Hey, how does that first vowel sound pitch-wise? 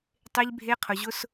high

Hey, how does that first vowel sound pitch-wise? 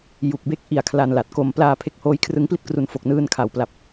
low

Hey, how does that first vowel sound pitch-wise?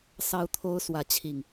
high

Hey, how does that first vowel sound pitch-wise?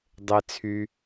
low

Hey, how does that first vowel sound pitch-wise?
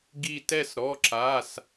falling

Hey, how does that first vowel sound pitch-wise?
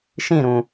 falling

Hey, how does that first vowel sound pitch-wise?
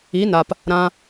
rising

